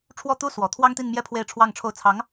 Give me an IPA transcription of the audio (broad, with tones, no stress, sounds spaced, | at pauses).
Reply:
ʈ͡ʂʰ w ɔ˥˩ t̪ u˥ s w ɔ˨˩ t̪ʰ w ɑ˥ ŋ t̪ i˥˧ n m j ɛ˥˧ pʰ w e˥˧ ɪ̯ ʈ͡ʂʰ w ɑ˥˧ ŋ ʈ͡ʂʰ o˥˩ ʊ̯ t͡sʰ ɑ˧˥ ŋ